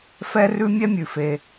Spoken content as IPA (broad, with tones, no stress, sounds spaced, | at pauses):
f ɛ˥ r ʉ˥ mʲ ɛ˥ mʲ ʉ˩ f e˩